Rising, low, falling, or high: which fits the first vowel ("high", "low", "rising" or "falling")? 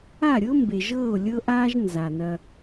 falling